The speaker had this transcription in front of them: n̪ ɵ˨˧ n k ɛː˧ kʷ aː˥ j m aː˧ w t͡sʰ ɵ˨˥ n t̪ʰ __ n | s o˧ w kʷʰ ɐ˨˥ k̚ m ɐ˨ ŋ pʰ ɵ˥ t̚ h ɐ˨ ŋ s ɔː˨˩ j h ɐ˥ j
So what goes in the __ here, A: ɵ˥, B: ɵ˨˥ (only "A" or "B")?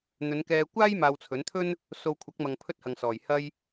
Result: A